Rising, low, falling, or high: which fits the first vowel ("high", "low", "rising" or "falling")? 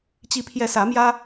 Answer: rising